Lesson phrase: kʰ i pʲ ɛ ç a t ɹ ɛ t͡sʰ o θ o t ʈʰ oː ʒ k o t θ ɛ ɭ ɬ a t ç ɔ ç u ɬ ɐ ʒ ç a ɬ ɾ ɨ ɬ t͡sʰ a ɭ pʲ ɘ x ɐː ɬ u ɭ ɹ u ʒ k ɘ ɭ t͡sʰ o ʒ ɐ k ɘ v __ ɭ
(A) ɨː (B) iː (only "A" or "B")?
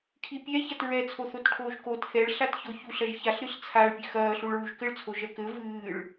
A